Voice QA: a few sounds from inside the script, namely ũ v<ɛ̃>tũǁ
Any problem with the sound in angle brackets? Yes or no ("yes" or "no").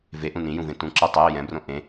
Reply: yes